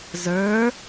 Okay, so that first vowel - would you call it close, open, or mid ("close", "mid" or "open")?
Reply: mid